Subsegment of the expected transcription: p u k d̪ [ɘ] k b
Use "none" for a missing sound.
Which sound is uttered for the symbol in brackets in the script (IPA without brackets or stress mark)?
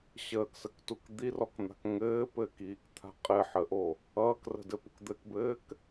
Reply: ɘ